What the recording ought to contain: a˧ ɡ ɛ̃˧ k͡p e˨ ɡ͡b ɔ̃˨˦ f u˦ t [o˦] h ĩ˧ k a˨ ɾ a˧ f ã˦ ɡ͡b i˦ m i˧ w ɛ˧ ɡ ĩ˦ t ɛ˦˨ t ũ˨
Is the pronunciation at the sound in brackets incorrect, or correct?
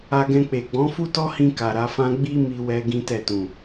incorrect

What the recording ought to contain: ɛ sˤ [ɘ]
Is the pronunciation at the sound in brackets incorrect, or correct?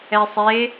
incorrect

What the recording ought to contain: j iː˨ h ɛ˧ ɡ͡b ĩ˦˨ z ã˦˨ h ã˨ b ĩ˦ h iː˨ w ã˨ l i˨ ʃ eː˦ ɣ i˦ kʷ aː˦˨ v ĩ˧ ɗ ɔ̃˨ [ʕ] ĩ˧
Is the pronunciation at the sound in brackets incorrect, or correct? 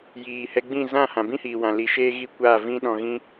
incorrect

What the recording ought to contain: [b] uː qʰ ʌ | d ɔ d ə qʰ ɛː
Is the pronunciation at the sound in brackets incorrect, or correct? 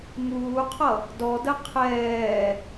incorrect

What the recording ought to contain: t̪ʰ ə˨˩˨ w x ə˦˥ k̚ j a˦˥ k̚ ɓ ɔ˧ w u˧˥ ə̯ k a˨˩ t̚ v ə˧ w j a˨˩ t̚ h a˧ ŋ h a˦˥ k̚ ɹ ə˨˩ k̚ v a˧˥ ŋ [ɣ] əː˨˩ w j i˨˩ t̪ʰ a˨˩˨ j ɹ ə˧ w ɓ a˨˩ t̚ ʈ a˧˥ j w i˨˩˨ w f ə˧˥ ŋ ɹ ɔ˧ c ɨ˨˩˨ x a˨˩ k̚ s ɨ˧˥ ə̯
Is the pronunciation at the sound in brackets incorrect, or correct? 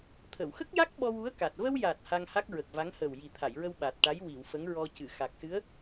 incorrect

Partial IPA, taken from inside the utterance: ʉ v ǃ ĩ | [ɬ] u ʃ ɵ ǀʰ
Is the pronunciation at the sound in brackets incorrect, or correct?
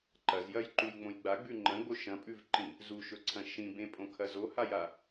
incorrect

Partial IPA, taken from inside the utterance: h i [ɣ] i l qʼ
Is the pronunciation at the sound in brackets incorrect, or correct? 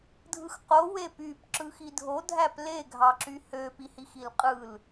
incorrect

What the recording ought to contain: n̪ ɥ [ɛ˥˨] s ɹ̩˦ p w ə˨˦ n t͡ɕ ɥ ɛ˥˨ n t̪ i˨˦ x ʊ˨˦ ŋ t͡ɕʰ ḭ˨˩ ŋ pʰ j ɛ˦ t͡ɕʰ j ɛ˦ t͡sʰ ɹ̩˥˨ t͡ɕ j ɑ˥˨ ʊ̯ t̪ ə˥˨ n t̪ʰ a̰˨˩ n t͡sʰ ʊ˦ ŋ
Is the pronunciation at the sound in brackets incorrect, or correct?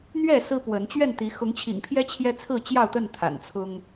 correct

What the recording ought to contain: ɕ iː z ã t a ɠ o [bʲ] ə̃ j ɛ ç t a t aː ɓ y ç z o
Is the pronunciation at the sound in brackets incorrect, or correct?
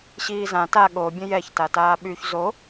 correct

